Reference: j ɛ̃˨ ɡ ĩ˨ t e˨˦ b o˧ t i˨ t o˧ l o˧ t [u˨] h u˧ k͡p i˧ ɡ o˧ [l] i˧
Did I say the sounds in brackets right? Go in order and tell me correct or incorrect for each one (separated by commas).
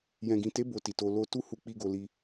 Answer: incorrect, correct